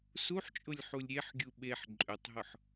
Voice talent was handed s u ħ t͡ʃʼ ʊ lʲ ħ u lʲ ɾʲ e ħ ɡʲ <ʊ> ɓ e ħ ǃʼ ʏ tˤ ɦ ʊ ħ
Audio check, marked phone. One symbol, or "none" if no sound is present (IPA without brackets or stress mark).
u